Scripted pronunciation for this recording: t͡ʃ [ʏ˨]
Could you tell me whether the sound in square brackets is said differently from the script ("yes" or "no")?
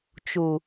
yes